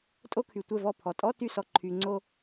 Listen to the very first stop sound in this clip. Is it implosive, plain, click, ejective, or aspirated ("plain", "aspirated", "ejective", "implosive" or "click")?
ejective